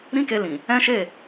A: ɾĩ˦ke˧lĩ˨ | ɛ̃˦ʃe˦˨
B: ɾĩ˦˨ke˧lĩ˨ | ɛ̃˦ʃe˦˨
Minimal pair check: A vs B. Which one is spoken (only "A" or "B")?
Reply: A